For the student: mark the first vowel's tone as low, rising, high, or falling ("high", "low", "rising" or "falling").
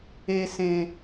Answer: low